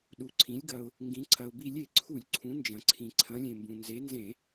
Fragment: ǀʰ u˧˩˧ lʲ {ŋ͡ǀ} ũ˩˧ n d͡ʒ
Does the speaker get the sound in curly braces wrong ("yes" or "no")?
yes